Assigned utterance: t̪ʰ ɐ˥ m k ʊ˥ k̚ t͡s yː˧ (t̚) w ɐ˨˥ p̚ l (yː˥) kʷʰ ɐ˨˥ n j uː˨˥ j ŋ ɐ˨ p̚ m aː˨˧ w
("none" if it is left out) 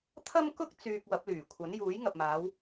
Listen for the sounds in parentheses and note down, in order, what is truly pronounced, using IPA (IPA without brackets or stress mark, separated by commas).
k̚, yː˨˩